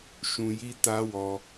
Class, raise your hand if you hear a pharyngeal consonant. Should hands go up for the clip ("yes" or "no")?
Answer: no